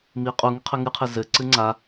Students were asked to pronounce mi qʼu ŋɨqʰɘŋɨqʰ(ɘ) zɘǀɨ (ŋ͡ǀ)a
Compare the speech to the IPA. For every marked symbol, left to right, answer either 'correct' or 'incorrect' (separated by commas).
incorrect, correct